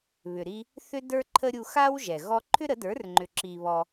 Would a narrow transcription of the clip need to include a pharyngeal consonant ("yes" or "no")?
no